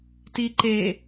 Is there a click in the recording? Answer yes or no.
yes